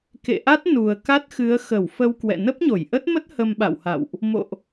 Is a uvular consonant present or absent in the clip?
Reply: absent